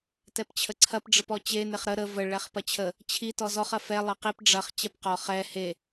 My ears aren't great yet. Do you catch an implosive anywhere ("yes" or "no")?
no